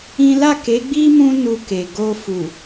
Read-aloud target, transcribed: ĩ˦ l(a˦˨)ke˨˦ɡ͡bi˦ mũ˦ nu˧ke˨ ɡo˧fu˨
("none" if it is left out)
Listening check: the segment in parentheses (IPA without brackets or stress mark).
a˦˨